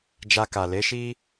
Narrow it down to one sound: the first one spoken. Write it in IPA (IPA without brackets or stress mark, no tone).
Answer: d͡ʒ